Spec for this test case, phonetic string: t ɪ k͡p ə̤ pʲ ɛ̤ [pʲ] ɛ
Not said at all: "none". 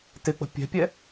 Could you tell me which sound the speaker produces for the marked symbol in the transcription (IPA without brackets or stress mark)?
pʲ